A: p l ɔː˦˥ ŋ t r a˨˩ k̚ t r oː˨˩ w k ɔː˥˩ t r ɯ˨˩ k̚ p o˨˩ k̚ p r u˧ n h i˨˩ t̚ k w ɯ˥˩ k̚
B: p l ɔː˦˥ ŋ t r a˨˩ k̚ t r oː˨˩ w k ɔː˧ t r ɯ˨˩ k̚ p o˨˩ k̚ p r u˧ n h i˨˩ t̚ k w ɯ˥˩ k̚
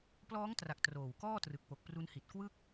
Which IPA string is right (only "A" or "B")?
A